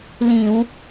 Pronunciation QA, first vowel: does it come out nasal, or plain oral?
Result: nasal